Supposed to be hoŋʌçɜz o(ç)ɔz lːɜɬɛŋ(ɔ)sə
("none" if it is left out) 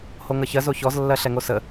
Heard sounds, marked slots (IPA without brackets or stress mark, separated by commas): ç, o